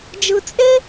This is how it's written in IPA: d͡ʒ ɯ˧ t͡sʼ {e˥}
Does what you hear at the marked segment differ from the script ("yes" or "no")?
no